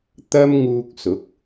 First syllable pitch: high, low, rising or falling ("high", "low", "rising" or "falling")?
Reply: high